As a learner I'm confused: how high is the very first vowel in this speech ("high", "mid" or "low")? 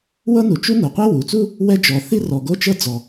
mid